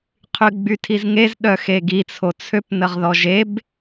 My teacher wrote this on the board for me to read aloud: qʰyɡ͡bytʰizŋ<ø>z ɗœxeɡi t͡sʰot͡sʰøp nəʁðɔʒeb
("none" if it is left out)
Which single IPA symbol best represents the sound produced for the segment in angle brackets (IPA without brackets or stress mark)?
e